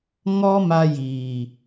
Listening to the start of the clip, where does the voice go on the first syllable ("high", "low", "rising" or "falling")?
high